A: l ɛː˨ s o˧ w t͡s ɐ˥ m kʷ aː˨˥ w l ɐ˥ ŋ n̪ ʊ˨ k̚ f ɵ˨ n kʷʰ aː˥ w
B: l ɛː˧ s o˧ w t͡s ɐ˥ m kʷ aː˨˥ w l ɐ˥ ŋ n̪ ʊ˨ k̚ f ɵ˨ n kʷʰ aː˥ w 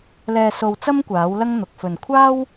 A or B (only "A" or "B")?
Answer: B